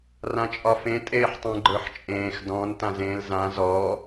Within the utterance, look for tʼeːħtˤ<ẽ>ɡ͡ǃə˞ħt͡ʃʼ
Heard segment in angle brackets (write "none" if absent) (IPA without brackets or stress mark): ẽ